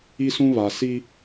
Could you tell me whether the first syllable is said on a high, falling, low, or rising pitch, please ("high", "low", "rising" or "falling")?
high